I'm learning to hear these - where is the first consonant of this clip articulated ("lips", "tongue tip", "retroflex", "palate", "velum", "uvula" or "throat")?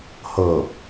throat